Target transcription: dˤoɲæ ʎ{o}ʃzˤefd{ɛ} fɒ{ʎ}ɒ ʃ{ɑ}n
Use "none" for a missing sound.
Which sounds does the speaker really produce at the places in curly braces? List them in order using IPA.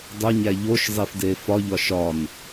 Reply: o, e, ʎ, ɒ

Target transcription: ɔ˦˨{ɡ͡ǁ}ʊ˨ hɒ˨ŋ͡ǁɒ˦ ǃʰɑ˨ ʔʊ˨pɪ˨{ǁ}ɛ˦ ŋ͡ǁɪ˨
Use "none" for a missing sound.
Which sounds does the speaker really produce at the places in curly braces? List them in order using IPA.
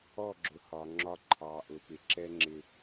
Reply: ɡ͡ǁ, ǁ

